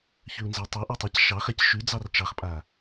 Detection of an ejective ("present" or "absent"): present